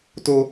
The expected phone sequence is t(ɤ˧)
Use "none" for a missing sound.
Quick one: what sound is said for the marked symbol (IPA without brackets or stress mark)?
o˧